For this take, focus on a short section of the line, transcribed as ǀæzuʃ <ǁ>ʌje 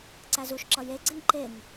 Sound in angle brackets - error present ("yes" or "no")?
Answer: no